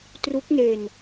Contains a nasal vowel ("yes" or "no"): no